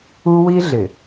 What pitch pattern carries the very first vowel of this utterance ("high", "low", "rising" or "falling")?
high